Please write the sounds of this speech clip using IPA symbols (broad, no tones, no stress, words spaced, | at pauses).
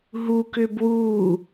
ɦu kʏːbwuː